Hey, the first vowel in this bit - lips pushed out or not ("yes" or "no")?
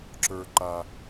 no